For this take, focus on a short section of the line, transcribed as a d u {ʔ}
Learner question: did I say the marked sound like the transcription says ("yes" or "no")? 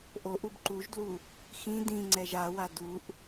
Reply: yes